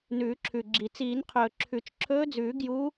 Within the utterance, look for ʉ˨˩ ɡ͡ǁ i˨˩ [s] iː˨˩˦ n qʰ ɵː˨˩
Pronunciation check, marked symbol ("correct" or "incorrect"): incorrect